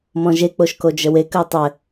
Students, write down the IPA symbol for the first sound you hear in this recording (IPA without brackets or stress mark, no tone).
m